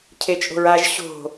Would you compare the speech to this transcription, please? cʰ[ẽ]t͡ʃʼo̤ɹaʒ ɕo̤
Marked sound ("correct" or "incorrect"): incorrect